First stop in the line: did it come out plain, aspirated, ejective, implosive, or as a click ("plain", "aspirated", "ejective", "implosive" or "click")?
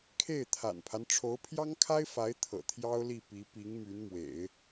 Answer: aspirated